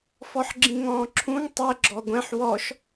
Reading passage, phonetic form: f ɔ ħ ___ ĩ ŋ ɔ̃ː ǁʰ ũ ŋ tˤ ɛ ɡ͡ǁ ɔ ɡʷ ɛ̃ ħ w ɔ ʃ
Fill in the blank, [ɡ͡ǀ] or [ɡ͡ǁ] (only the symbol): ɡ͡ǁ